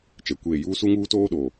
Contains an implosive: yes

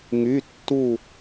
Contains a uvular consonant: no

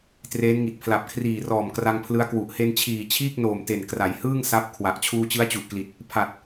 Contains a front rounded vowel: no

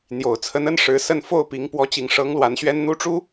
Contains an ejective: no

